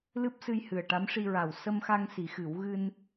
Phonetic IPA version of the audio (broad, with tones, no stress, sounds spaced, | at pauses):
l ɨ˦˥ p̚ s ɨ˧ j h ɨ˨˩ ə̯ ʈ a˧˥ m ʂ i˧ ɹ a˨˩ w s ə˧ m x a˧ ŋ s i˨˩˦ x ɨ˨˩˦ w ɣ ɨ˧ n